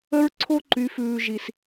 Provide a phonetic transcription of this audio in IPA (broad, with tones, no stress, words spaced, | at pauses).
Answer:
ə˦ɹǀʰo˦ ǃy˨˦fʉː˨ʒi˨s